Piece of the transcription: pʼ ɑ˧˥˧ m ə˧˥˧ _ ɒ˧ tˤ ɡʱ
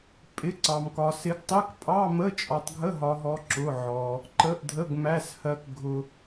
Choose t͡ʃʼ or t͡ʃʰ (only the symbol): t͡ʃʼ